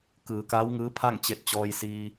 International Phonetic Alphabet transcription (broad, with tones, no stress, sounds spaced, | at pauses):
k ɯː˩˧ k aː˧˥ w ŋ ɯː˧˥ pʰ a˥˨ ŋ t͡ɕ e˧ t̚ t͡ɕ ɔː˧ j s iː˧